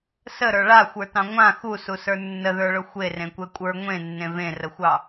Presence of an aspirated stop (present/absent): absent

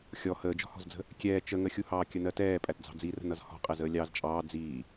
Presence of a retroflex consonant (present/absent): absent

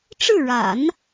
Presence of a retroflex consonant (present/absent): present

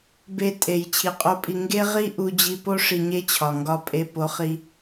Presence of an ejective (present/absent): present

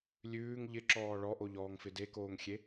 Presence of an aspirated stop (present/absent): absent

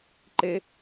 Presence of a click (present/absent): present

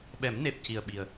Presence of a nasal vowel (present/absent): absent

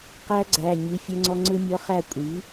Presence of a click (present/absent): present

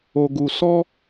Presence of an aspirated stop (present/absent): absent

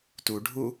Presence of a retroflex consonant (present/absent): present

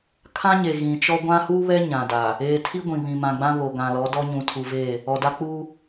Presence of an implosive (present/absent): absent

